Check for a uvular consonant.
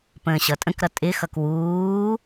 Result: absent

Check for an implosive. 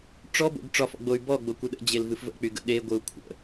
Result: present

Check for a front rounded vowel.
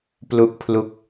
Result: absent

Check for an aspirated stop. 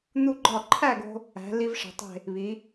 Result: present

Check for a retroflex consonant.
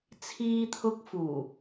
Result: absent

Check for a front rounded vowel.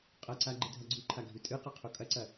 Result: absent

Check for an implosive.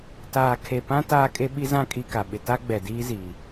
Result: present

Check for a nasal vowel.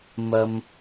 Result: absent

